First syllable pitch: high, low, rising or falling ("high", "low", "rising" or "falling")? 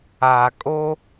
low